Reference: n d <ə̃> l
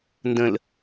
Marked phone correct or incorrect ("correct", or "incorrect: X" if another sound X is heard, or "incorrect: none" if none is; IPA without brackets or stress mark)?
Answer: correct